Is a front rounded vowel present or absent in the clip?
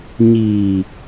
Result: absent